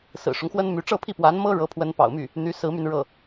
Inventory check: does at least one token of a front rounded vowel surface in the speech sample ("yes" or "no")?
yes